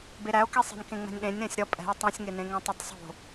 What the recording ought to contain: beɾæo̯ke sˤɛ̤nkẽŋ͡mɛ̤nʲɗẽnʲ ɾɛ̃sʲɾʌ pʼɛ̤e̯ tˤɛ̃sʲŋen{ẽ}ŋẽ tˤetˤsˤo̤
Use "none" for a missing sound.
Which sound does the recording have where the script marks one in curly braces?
ẽ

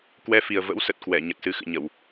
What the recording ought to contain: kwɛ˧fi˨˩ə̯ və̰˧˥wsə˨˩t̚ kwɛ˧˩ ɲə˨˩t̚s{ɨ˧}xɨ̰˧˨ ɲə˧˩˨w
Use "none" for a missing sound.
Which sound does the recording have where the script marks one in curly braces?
ɨ˧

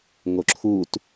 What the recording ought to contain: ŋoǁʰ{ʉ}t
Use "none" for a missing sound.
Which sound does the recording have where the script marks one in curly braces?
u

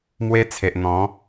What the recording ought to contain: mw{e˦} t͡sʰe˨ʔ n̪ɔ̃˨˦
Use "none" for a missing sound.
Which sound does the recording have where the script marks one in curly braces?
e˦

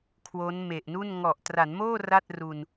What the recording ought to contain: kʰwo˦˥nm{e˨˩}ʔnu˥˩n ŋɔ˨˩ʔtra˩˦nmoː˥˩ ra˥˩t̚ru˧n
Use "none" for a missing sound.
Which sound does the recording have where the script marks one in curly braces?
e˨˩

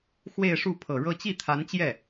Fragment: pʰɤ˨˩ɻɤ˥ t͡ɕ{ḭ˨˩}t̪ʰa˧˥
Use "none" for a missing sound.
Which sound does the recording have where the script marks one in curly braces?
i˥˩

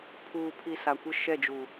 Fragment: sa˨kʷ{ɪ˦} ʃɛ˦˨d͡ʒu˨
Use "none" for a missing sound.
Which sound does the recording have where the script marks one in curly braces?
ɪ˦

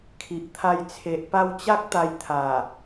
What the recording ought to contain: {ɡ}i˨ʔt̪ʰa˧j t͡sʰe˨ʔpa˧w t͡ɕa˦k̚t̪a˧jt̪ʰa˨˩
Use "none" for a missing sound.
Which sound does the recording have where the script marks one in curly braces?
kʰ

